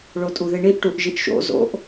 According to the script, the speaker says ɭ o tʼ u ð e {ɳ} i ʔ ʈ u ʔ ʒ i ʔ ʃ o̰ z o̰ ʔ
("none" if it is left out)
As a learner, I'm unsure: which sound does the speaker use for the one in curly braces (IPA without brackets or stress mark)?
ɳ